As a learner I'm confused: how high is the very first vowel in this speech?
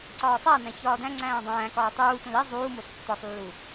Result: low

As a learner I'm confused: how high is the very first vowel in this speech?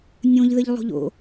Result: mid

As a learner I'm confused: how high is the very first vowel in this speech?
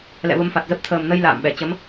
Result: mid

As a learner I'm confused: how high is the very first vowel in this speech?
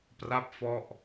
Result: low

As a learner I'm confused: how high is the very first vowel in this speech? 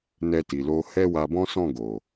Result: mid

